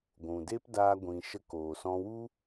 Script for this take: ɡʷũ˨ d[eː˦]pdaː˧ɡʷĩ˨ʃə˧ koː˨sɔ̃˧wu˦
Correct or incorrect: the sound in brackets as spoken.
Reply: correct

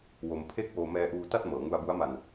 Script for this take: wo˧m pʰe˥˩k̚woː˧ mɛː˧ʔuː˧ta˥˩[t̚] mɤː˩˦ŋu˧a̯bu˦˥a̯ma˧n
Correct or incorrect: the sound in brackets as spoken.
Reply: correct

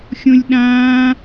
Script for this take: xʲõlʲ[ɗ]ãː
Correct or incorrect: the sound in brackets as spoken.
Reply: correct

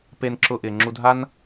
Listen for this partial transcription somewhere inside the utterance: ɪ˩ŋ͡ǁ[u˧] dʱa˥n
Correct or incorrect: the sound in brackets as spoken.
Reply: correct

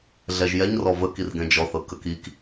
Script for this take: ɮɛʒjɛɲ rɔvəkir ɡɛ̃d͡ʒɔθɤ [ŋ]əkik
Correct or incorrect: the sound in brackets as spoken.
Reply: incorrect: k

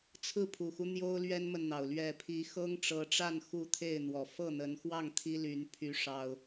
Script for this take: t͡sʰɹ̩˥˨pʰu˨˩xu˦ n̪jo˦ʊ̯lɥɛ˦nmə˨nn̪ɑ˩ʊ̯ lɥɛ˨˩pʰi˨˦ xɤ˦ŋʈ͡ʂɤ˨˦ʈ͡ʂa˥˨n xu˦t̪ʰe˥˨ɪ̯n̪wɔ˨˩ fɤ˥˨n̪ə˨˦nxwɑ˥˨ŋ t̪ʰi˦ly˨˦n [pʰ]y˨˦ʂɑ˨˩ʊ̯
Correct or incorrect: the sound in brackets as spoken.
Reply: correct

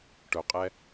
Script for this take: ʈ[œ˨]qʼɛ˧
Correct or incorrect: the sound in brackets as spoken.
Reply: correct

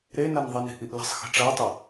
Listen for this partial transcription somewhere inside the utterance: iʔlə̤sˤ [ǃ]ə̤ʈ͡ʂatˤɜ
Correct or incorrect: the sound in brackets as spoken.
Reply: incorrect: x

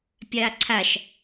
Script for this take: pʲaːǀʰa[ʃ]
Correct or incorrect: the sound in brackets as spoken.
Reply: correct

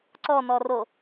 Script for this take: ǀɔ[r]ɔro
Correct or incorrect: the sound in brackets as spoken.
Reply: incorrect: n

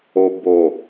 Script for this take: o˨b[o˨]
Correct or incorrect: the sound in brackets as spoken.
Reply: correct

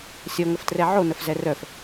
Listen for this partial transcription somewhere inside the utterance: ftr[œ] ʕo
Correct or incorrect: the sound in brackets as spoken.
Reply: incorrect: ɛ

